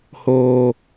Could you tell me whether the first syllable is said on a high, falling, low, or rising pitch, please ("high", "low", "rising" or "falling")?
high